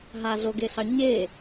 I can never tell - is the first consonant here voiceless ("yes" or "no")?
no